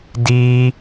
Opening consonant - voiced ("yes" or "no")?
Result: yes